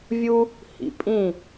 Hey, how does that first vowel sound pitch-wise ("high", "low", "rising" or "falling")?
high